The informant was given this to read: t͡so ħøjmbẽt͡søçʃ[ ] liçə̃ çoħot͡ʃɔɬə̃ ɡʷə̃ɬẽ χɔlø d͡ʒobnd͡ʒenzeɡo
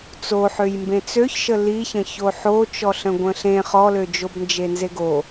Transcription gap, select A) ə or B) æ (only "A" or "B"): A